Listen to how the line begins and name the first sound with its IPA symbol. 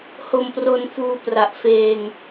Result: h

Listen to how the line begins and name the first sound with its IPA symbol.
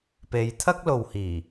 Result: p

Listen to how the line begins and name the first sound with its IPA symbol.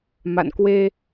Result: m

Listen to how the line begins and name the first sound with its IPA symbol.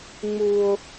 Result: ŋ͡m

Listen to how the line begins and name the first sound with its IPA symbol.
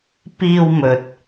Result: p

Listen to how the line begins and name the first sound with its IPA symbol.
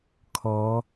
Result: kʰ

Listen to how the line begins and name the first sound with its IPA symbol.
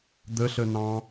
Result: d̪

